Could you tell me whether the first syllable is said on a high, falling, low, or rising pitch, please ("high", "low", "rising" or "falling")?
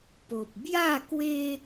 low